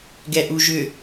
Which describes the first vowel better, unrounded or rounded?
unrounded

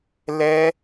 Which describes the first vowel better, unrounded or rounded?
unrounded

